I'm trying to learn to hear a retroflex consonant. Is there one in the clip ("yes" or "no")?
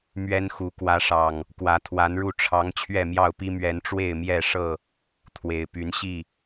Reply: yes